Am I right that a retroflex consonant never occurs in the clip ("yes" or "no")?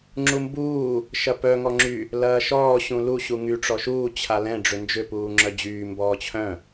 no